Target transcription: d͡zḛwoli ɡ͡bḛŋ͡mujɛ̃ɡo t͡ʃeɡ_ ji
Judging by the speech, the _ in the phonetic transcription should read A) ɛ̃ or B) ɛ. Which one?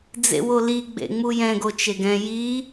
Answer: A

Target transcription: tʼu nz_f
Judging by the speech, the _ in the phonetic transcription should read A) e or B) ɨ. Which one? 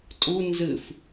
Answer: B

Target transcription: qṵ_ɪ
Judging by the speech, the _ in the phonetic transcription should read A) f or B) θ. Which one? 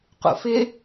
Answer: A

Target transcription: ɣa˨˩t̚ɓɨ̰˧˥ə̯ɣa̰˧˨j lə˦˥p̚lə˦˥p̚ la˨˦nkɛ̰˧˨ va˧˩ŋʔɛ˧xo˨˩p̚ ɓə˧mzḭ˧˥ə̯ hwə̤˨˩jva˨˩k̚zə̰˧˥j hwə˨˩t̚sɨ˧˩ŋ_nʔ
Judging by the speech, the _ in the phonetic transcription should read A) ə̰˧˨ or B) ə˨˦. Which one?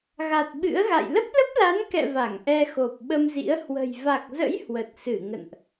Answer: A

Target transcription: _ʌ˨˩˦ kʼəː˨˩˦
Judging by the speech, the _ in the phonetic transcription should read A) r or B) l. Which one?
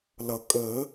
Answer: B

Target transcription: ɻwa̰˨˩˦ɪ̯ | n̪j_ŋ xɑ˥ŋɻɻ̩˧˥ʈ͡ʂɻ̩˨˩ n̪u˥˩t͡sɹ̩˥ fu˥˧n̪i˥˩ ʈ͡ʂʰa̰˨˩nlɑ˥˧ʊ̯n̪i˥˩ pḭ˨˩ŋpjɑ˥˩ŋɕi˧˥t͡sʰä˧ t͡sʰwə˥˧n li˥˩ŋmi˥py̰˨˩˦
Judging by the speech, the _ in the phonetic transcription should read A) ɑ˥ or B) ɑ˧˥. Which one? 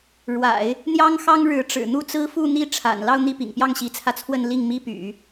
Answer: A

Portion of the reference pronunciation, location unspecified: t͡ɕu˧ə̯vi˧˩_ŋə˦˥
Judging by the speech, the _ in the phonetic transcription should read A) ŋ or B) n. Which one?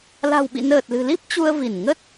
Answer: B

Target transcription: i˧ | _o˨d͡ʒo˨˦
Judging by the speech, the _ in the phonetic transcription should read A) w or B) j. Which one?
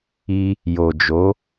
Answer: B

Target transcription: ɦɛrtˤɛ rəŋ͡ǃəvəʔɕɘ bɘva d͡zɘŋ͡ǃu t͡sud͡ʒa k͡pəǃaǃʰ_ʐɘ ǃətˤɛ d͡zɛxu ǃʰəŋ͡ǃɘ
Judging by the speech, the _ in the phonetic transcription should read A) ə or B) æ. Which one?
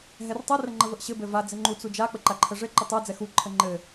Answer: A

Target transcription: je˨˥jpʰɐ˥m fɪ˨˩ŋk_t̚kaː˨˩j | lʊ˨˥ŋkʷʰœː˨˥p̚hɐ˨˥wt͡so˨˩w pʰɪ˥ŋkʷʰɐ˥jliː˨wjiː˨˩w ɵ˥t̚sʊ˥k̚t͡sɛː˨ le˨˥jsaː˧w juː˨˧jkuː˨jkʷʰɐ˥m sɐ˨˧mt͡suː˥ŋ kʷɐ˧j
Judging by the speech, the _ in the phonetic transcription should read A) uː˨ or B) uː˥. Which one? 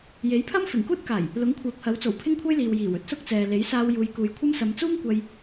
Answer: B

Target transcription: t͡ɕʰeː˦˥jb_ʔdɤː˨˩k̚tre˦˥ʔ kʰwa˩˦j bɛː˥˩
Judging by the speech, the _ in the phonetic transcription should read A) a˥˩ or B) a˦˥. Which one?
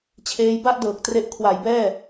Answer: A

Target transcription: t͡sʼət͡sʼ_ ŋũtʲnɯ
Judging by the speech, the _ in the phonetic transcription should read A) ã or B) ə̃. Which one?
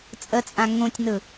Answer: A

